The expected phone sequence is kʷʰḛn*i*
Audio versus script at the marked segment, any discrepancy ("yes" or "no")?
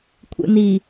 no